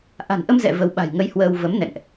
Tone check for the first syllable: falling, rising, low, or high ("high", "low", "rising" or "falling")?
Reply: low